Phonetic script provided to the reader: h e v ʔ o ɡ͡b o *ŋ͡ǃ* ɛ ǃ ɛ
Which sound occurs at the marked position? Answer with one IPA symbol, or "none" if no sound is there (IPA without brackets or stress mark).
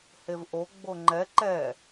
ŋ͡ǃ